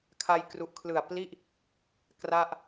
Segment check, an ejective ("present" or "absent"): absent